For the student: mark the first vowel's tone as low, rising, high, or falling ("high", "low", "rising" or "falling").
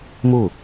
falling